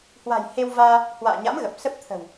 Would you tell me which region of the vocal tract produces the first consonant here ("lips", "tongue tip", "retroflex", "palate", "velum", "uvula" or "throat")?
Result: throat